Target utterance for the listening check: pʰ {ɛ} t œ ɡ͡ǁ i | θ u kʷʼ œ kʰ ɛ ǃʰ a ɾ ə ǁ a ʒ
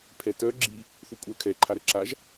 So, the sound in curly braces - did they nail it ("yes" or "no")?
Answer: yes